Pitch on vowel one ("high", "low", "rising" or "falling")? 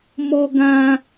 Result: high